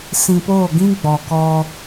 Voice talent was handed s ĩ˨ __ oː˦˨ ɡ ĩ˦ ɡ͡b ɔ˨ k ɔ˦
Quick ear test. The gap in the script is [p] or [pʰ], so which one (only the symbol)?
p